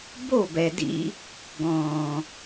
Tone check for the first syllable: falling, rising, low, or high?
falling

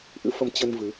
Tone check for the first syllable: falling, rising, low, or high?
rising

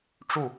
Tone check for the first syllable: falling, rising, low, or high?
falling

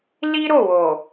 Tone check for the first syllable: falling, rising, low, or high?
high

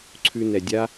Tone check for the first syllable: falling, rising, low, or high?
low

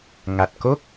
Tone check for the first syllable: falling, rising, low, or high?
low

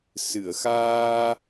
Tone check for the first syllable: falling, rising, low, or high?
low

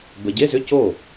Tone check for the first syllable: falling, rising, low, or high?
low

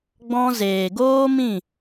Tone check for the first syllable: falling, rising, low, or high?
high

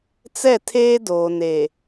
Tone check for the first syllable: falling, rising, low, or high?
falling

